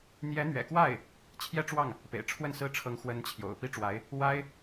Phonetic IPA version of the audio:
n̪jɛ˧˥n̪ɥɛ̰˨˩kwa˥˩ɪ̯ | t͡ɕʰjɛ˥˧ʈ͡ʂwɑ˥˩ŋ | pḛ˨˩ɪ̯ʈ͡ʂʰwə˥˩nsɹ̩˥ʈ͡ʂʰɤ˧˥ŋ xwə˧˥n t͡ɕʰjo̰˨˩ʊ̯ pi˥ʈ͡ʂwa˧˥ɪ̯ | wa˥ɪ̯

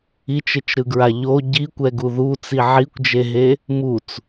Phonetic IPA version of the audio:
it͡ʃet͡ʃɾɯɡɹa ʎo ɟikʷɛɡu ðut͡si ʕikʷd͡ʒeɦe | mut͡s

